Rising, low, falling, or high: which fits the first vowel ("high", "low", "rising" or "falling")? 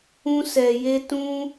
high